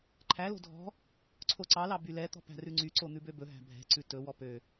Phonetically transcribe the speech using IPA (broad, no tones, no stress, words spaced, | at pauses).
ǃʰælo̤ dʱɔ̤ | ǀʰoǀɑlɑ bylɛt̪ɔ̤ pæ̤rʉŋ͡ǀyǀo n̪ʉbøbɵɦæ̤ bʱɛ̤ǀʉ tɵwɔ pø